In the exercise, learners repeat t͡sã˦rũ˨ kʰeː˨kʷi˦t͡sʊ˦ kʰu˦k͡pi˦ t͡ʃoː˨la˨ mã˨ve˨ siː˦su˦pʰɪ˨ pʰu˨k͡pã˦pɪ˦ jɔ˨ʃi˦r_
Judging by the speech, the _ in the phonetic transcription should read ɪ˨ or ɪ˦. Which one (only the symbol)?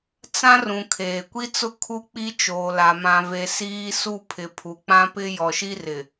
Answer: ɪ˨